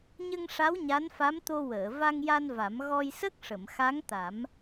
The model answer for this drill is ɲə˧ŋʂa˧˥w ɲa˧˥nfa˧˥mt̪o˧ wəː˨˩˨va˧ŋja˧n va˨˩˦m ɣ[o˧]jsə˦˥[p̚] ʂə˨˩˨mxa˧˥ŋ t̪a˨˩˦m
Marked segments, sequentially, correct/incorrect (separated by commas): incorrect, incorrect